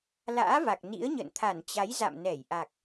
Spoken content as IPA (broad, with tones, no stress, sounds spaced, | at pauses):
l a̰ː˧˥ v a˨˩ k̚ n ḭ˧˥ ə̯ ɲ ə̰˧˨ n t̪ʰ a˧˩ n t͡ɕ a˨˦ j z a̰˧˨ m n ɛ˧˩ j ʔ a˨˩ k̚